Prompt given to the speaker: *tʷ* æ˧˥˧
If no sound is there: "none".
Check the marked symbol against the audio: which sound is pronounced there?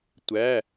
tʷ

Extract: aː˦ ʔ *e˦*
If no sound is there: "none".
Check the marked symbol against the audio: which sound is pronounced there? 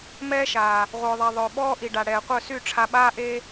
e˦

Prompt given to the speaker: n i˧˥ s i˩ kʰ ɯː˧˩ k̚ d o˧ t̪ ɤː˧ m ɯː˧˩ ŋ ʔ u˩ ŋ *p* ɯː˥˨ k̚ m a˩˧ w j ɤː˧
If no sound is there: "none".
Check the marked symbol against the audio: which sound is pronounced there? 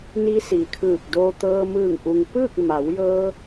p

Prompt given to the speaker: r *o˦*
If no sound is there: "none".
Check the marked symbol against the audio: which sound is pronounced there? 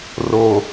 o˨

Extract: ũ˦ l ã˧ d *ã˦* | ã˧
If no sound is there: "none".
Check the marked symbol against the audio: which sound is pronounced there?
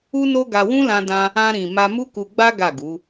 ã˧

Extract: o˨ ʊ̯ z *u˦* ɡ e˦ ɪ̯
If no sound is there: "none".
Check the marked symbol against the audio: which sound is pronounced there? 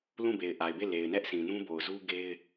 u˦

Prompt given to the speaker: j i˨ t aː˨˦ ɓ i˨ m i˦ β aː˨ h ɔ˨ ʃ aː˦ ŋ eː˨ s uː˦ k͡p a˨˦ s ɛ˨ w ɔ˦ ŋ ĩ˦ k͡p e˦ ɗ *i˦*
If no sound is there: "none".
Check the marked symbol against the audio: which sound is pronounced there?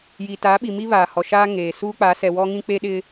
ɪ˦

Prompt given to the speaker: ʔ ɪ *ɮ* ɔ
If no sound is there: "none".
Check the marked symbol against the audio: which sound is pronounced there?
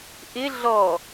ɮ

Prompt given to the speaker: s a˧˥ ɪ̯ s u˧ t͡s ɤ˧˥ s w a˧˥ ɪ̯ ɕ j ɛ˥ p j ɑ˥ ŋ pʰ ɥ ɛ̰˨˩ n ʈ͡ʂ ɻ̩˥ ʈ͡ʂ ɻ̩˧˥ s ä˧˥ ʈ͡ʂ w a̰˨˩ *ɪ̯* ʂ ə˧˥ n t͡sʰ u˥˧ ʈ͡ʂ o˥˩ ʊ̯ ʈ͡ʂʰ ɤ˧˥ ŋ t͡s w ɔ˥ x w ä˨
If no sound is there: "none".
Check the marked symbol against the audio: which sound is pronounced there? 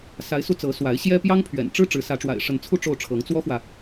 ɪ̯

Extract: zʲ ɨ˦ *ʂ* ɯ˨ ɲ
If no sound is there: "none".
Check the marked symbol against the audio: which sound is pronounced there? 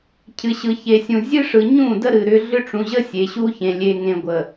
ʂ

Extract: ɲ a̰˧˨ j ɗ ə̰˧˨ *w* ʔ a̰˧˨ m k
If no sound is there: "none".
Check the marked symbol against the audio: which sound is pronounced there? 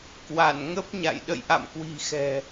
j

